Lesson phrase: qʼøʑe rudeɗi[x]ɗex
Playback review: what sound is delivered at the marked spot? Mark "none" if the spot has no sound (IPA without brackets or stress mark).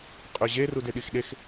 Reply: x